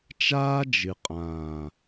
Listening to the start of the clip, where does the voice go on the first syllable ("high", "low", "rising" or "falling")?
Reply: high